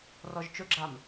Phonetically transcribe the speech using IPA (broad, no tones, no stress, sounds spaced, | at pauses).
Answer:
r ɔ ʒ t͡ʃ ʊ ɡ͡ǁ a m